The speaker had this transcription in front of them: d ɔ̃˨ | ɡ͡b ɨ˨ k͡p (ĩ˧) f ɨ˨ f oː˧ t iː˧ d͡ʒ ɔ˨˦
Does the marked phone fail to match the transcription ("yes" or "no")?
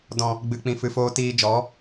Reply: yes